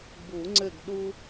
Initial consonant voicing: voiced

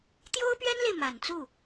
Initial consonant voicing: voiceless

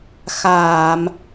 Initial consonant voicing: voiceless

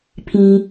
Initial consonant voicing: voiceless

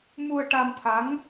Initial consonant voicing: voiced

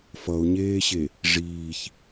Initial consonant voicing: voiceless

